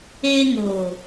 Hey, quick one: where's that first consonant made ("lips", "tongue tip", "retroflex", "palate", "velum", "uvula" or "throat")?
velum